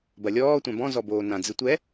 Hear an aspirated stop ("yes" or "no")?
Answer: no